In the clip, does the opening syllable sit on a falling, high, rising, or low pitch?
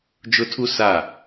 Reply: high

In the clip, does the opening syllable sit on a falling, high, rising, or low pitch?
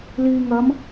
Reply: low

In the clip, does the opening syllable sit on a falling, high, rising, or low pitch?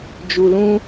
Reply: low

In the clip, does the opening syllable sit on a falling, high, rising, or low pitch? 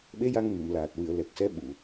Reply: rising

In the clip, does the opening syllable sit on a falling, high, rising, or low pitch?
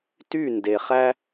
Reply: falling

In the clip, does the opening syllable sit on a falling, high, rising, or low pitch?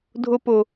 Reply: high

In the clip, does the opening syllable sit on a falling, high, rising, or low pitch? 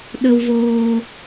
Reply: low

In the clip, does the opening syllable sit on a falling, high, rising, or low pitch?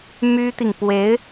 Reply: high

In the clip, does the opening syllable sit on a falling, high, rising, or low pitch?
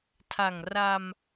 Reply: low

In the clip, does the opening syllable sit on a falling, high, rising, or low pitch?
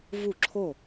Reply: falling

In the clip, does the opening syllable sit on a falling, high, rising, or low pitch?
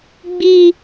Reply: high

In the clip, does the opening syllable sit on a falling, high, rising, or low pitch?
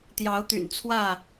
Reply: rising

